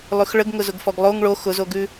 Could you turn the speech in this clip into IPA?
lˠ ʉ x ɭ ə ɡ ŋ ʊ z ʊ ɡ f ɔ ɡ lˠ o ŋ ɭ o x ʊ z o ɡ ʉ

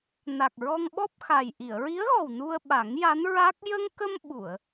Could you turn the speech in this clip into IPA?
n a˨˩ k̚ ɹ ɔ˧ ŋ ɓ ɔ˦˥ p̚ x a˨˩ j ʔ i˨˩˨ ə̯ ɹ i˧˥ ə̯ ɣ ɔ˨˩ w n u˧ ə̯ ɓ a˨˩˦ ŋ j a˧˥ n ɹ a˦˥ k̚ j ə˧ ŋ k ə˧ m ɓ u˨˩˨ ə̯

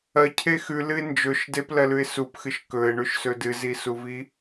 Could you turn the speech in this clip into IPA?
ɐ cʰ e x ʉ l ɨ ɪ̯ n d͡ʒ ɵ ʃ d e p l ɐ l ʉ ɪ̯ s u p x ɨ ʃ k ɵ ɪ̯ ɳ ʉ ʃ s ɵ d ɨ z i s u v i

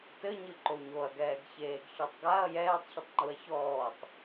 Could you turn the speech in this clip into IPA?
t ɘ ɲ ɨ ǃ o ɲ o ɐ̯ ɡ ɛː ɡ ç eː ɡ ç ɔ tˤ ɡ a ɐ̯ j ɛː tˤ ç ɘ tˤ ŋ͡ǃ u ɐ̯ ç ɔː tˤ

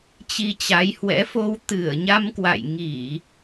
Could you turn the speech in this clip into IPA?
t͡ɕ i˧ t͡ɕ a˨˦ j h w ɛ̰˧˥ f o˧ w t̪ ɨ˧˩ ə̯ ɲ a˧ m k w a̰˧˨ j ŋ i˧˩˨

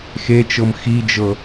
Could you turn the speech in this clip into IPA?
x e t͡ʃ ɤ m x i d͡ʒ ɤ

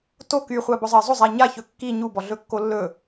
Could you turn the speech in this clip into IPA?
t o k y χʷ a b ɔ zˤ ɜ zˤ o zˤ æ ɲ a ç ɵ kː i ɲ u b ɔ ɮ ɵ kː o lː ɵ

